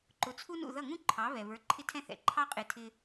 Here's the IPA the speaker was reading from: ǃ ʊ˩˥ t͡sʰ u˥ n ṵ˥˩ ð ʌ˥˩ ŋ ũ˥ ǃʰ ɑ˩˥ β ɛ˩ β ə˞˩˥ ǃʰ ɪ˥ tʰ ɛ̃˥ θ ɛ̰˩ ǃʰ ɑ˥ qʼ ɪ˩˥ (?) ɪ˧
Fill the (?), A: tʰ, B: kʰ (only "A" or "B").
A